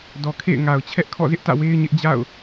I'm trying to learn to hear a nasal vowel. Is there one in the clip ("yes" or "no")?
no